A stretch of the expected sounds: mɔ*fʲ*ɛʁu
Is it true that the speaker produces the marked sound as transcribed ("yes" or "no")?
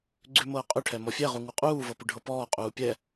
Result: yes